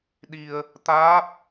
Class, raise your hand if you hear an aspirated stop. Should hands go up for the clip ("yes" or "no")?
no